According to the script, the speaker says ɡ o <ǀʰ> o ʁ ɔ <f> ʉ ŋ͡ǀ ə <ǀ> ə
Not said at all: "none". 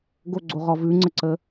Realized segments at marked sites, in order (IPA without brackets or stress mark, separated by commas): ɡ͡ǀ, v, ǀ